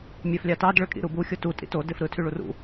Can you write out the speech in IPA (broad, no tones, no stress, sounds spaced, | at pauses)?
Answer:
mʲ æ f lʲ ɑ t ɑ d ɭ ø kʼ ḭ ɾ u b u xʲ o t u tʼ ḭ t o d e f ɾ ɯ tʰ y ɭ u r ṵ